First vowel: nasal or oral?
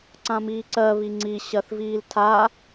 nasal